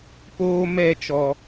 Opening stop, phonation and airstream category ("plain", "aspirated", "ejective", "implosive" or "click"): plain